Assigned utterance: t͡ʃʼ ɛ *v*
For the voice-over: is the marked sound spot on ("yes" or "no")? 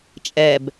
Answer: no